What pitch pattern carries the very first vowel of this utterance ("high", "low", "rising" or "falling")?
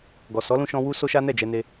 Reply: low